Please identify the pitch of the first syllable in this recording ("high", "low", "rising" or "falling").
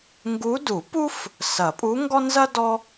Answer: rising